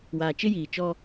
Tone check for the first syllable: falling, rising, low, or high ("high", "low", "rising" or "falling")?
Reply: low